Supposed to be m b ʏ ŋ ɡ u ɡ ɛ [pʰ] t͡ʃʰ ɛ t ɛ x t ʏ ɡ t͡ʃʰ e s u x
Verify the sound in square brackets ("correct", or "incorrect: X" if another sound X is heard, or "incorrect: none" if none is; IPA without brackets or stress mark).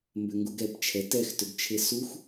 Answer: incorrect: p